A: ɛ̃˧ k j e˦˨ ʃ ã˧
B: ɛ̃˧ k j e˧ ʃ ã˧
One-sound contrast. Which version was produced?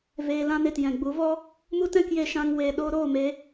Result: B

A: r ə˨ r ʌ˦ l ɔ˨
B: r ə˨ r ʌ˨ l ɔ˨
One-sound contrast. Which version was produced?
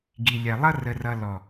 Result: B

